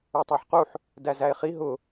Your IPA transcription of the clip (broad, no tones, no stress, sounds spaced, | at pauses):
ə˞ tˤ æ ħ q u ħ | d æ z æ e̯ χ i ɦ ʊ